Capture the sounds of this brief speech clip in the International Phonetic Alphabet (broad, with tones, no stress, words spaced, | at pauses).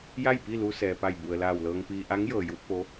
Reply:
ja˥˨jpi˥˨lu˧ sɛː˩pa˧˩jbu˩ə̯ laː˧˩wlɤː˧ŋpiː˧ ʔa˧˥ŋjɤː˩ju˧t̚ po˧˥